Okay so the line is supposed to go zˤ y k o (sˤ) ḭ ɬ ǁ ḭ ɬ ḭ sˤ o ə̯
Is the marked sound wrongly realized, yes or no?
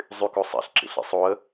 no